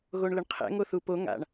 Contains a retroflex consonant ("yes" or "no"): yes